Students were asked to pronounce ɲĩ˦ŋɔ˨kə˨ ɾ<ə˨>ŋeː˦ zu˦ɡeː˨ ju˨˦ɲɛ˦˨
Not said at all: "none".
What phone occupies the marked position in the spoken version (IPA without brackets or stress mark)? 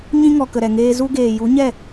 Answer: ɛ˨